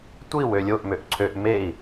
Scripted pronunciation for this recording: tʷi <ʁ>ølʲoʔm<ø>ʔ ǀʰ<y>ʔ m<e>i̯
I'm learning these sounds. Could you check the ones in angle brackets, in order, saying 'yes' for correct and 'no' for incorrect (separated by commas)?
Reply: no, yes, no, yes